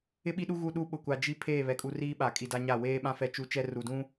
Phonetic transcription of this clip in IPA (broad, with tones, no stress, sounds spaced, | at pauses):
ɪ˦ ɓ i˦ ɗ u˦ ɣ u˦ ɗ u˦ ɓ ʊ˨ kʷ a˨ d͡ʒ i˦ pʰ eː˦˨ β ɛ˨ kʼ u˦ r iː˦ ɓ a˨ kʼ i˨ d a˦ ɲ a˦˨ w eː˦ ɓ ã˦ f ɛ˦ t͡ʃ u˦ t͡ʃ ɛ˦ r u˨ d ũ˦